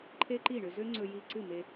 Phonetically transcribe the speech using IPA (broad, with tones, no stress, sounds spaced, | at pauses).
ǃʰ e˦ ǃ i˦˨ ɳ ø˧ z ø˦ ŋ͡ǀ ɵ˧ j i˧ ǀ ɨ˦˨ m e˧